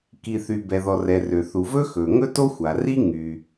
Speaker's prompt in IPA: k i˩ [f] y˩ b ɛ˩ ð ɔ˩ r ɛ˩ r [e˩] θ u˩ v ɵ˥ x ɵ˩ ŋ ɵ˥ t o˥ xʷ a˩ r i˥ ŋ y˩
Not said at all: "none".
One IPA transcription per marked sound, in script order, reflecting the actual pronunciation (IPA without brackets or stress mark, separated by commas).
θ, ø˩